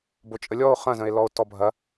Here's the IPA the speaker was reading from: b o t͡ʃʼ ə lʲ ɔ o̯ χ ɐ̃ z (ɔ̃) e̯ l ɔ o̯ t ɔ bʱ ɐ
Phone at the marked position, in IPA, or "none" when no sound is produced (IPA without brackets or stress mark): ə̃